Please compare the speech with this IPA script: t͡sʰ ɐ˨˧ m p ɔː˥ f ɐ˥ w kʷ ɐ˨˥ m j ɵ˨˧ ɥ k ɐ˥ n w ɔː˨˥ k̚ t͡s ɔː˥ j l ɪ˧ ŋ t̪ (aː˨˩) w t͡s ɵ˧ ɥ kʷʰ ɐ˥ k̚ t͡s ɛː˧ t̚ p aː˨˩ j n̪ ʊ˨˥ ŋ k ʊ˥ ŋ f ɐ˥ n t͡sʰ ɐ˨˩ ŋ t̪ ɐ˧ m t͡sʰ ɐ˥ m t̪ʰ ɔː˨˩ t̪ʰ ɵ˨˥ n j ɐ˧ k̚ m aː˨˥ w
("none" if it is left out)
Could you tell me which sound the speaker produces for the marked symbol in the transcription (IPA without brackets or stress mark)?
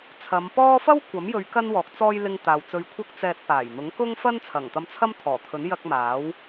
aː˨